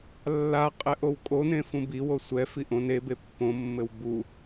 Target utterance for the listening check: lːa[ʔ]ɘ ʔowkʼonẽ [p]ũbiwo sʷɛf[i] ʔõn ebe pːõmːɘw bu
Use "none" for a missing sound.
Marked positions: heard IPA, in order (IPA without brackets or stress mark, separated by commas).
qʼ, f, i